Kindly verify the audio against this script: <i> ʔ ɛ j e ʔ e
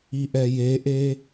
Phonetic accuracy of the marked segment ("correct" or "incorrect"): correct